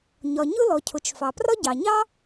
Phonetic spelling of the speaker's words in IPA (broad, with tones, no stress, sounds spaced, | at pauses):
ɲ ɒ˩ ɲ ʊ˥ l ɔ˩ cʰ ʊ˩ t͡ʃ f ɑ˩ p r ɒ˥ ɟ ɑ˩ ɲ ɑ˥